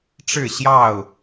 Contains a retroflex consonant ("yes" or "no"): yes